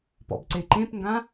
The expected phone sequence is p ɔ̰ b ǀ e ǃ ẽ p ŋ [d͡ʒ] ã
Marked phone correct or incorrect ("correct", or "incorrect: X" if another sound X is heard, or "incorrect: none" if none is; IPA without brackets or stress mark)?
incorrect: ɡ